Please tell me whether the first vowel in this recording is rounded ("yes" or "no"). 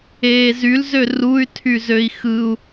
no